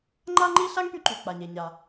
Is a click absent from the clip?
no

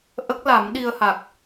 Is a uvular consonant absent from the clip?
yes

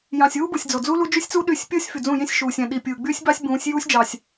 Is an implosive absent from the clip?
no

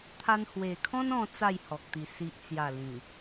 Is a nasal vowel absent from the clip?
no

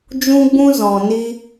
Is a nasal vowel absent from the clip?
no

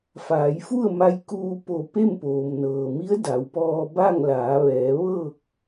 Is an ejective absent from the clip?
yes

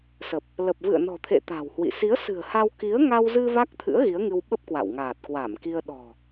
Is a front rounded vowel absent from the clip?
yes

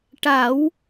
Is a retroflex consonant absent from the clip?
no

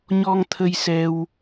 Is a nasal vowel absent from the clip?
yes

